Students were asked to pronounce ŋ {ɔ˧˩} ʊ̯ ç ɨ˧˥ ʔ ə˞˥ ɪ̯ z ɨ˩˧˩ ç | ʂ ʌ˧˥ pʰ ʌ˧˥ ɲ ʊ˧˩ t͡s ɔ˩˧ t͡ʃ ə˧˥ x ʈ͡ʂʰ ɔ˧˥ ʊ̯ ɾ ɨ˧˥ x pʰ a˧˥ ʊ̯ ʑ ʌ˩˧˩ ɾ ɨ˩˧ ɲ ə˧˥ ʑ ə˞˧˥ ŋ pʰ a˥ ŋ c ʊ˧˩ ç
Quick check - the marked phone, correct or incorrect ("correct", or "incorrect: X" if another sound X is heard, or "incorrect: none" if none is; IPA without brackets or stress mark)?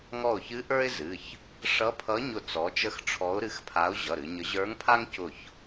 correct